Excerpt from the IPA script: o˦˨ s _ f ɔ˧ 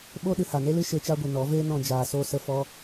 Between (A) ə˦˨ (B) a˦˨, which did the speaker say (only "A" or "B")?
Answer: A